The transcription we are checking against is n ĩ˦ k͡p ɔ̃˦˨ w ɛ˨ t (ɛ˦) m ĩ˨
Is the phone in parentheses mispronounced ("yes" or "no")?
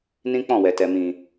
yes